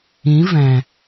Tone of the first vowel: rising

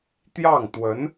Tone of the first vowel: falling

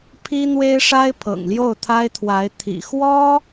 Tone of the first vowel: high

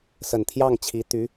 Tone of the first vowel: low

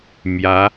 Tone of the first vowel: rising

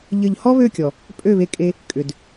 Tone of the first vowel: falling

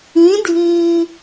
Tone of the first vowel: rising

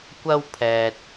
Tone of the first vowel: high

